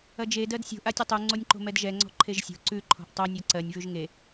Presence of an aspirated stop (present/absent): present